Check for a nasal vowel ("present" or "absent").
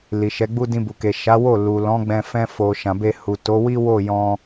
present